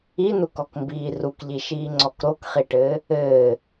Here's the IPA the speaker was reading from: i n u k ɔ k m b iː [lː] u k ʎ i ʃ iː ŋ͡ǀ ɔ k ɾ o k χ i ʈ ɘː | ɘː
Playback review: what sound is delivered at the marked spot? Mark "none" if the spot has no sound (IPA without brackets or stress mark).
r